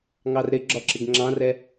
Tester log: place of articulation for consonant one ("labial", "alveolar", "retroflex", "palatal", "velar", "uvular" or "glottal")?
velar